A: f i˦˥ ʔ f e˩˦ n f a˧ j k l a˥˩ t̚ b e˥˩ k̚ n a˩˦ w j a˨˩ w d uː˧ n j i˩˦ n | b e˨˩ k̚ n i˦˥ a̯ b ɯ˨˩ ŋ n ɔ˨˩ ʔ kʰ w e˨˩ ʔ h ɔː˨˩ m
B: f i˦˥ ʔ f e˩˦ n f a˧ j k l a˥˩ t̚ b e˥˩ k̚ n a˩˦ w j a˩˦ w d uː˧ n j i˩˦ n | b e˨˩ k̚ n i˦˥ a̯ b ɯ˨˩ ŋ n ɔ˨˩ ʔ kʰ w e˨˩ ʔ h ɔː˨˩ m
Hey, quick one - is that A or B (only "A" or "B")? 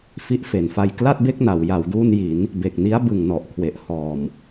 B